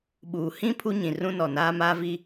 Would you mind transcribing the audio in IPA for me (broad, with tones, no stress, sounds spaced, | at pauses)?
ɓ uː˨ h ĩ˦ pʰ u˦ ɲ ĩ˨ r ũ˦ n ɔ˨ n aː˦ m aː˦ v i˦